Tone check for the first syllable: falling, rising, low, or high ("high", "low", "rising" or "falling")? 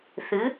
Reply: rising